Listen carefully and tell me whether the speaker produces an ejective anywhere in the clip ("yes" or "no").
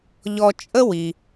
yes